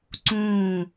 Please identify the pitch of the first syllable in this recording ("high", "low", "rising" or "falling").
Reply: falling